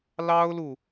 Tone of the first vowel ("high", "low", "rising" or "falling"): high